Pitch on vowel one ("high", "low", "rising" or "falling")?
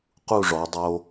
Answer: falling